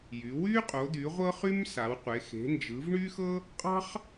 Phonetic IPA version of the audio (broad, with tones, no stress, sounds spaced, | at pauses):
j y˨˦ w y˥ qʼ o˨˦ d̪ y˨˦ ʁʷ ɤ˥ χ y˥ m s a˨˦ w qʷ e˨˦ x e̤˨˦ n d͡ʒ ɯ˨˦ v ɳ y˥ x ɤ˥ | qʼ ɑ̤˥ χ